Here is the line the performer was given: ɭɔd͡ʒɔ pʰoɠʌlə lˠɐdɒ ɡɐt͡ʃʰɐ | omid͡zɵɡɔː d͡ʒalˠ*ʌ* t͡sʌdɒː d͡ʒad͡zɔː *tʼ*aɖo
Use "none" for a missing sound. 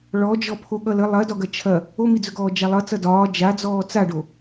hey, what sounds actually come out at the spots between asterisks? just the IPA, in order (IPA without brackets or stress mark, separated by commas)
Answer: ʌ, t͡s